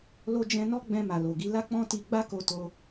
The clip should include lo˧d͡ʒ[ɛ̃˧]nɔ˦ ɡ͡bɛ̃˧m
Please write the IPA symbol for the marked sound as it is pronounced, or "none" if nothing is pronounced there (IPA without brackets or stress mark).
ɛ̃˧